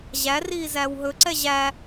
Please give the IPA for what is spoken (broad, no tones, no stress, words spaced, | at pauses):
ʑæriː zæːwɦɵǀɛ ʑæ